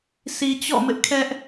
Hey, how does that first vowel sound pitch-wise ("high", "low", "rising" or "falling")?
low